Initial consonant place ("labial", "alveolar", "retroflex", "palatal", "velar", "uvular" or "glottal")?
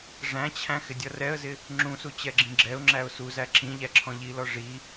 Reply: retroflex